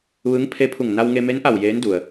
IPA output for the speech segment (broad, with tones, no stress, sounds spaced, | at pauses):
ʋ ɯː˧˥ ŋ pʰ e˧˥ pʰ u˧˩ ŋ n a˧ w ŋ e˧ m e˧˥ n ʔ a˧˩ w j eː˧˥ n d u˩ ə̯